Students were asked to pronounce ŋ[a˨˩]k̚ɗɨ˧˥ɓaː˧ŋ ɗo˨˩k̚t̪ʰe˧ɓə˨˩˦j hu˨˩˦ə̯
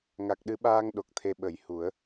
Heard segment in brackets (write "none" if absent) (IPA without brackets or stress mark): a˨˩